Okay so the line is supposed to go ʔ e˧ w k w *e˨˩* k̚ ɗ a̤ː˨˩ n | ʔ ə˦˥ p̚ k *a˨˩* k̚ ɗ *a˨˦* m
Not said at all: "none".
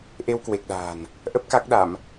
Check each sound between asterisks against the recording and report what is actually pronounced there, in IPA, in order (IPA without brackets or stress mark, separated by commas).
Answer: e˨˩, a˦˥, a˧˩˨